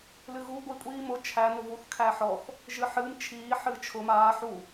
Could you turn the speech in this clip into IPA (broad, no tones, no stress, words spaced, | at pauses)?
lɨɣu ɡʷi kʷʼiːmʊ t͡ʃʰæ nʊvuθ kʰæħɔθ | ʒɨħɨːm t͡ʃʰiː ħɨːt͡ʃʰʊ maː ħu